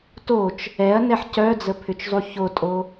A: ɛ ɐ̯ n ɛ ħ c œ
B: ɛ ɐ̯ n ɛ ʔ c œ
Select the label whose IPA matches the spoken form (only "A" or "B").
A